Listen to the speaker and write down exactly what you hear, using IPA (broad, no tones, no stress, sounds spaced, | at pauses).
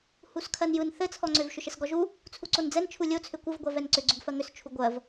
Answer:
h u s kʰ ɜ n j ɯ n θ ɘ t͡sʰ ɔ ŋ͡ǀ ʏ v ʃ ʏ ʃ ɘ s ɡ ɔ ʒ u | t͡sʰ u ǀ o n d͡z ɛ n t͡ʃʰ u lʲ o t͡sʰ ʏ kʷ ɘ v ɡʷ ɜ v ɛ n ǀ ʏ ɡ͡ǀ ʏ ɡ f ɜ ŋ ʏ s t͡ʃʰ u ɡʷ ɜ v